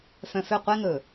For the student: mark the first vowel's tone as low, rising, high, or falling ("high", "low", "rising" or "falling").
low